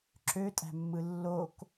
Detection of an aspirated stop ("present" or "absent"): absent